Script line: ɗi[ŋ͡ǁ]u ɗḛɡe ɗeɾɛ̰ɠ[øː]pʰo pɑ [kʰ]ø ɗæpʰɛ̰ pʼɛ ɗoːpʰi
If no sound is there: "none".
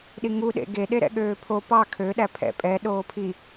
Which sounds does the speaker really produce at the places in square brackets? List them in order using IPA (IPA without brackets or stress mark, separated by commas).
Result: ŋ, øː, kʰ